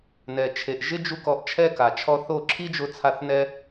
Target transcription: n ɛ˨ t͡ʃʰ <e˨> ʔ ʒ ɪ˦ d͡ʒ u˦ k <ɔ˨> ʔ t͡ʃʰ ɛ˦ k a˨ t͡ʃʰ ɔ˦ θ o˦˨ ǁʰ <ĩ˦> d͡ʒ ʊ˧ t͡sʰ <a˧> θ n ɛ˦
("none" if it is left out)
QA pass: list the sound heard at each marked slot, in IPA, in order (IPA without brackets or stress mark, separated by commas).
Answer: e˨, ɔ˧, i˦, a˧